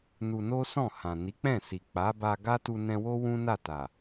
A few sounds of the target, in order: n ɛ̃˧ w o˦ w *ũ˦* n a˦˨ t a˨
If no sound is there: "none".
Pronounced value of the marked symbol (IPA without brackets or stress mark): ũ˦